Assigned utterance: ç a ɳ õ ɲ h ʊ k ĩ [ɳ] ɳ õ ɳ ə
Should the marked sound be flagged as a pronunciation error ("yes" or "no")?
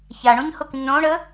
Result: yes